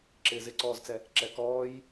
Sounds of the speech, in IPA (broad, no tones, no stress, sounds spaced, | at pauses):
ǁ ɪː z ɪ ǀ ɔː z t͡s ɛ | ǁ ɛ k ɔː j